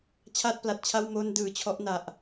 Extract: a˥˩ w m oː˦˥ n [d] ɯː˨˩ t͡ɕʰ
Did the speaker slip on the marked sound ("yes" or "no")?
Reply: no